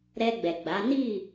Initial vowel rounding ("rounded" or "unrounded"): unrounded